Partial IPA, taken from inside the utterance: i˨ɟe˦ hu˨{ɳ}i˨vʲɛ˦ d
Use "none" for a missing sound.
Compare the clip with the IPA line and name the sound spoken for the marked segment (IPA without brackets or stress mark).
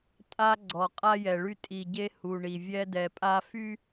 ɳ